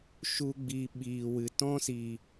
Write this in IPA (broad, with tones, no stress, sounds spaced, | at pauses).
ʃ u˦ ɡ͡b i˧ ɓ iː˨ w ɨ˨ t ɔ̃˦ s i˨